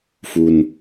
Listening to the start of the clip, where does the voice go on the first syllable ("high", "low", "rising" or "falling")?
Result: low